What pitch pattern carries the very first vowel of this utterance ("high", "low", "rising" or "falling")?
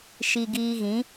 low